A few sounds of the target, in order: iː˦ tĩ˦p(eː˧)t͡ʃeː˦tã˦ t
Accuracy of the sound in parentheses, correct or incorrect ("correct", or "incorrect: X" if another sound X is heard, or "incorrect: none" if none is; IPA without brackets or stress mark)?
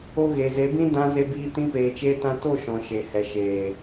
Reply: correct